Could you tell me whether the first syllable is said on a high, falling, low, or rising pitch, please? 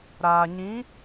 low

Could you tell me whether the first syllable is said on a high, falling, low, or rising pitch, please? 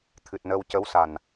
low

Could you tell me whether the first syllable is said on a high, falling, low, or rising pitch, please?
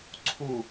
low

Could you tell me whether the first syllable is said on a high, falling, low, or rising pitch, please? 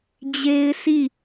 high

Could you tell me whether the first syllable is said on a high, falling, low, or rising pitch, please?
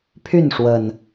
falling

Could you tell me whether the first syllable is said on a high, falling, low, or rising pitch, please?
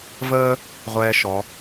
high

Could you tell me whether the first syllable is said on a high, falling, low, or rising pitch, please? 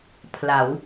rising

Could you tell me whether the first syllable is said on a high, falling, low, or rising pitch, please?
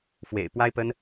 low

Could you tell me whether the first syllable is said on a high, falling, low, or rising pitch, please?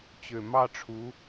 low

